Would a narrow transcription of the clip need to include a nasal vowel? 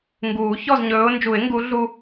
no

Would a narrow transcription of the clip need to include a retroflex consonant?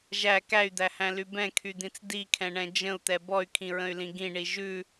yes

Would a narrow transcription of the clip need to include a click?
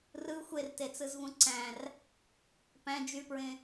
yes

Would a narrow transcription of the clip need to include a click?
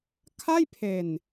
no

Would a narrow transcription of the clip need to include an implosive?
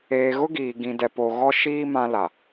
no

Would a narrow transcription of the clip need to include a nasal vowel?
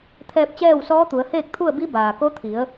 no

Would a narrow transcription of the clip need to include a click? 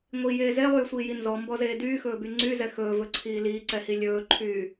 yes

